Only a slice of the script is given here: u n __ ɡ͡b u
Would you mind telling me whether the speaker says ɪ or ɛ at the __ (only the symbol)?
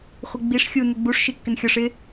ɪ